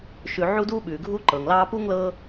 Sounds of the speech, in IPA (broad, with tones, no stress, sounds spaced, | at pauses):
ʃ ʉ˨ ʕ u˦ d uː˦ ɓ ʉː˩ ɡʱ uː˥ ǃ ɤː˩ ŋ l ɑː˦ p uː˥ ŋ l ɤː˦